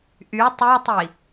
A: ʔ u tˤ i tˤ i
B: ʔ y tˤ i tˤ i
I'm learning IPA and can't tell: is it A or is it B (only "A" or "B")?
B